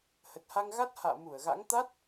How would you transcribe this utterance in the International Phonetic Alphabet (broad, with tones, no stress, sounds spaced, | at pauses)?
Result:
h ə˨˩ t̚ h a˧ ŋ ɣ a˦˥ t̚ h a̰ː˧˨ m u˧˩ ə̯ ɣ a̰˧˥ ŋ t̪ a˦˥ t̚